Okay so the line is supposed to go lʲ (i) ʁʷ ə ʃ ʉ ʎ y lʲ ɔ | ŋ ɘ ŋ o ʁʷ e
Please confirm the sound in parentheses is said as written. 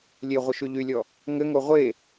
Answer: no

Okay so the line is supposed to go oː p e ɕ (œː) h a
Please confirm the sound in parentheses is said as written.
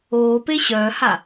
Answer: yes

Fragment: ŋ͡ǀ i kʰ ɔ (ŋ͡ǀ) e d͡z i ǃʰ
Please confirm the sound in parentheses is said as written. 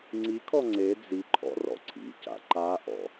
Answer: yes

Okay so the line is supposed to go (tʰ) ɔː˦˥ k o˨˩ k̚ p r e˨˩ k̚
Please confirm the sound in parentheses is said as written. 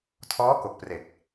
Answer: yes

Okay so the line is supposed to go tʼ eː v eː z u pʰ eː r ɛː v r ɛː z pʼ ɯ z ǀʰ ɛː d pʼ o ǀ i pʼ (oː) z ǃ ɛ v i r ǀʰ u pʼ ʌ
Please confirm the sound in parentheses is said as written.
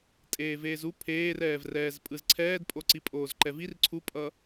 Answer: yes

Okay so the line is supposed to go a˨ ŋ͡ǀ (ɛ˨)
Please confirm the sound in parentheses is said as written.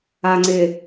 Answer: no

